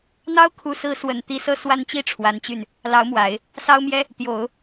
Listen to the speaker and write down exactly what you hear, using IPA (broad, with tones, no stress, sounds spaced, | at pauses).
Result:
n̪ ɑ˥ ʊ̯ kʰ u˧˥ s ɹ̩˧˥ s w ə˨˩ n t̪ i˧˥ s ɤ˥˩ s w a˥ n t͡ɕ i˥ ʈ͡ʂʰ w a˧˥ n t͡ɕ y˥˩ n | l ɑ˧˥ ʊ̯ m w a˨˩˦ ɪ̯ | s ɑ˥ ʊ̯ m j ɛ˥ | t̪ j o˨˩˦ ʊ̯